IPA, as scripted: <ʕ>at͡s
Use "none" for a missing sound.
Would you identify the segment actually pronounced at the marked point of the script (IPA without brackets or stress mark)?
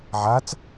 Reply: ʕ